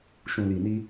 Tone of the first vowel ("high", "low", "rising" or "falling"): low